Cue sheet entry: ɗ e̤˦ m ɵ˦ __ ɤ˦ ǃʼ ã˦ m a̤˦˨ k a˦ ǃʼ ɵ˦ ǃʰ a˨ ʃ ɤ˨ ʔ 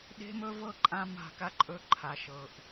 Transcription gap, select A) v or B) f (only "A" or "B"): A